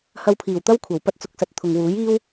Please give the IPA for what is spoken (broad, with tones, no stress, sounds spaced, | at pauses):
h ɐ˧ w pʰ iː˨˩ w t̪ ɐ˥ w kʷʰ ɐ˨˩ w p ɐ˧ t̚ t͡s ʊ˨˥ k̚ s ɐ˨˥ t̚ t̪ʰ ʊ˨ ŋ w uː˨˥ j iː˥ w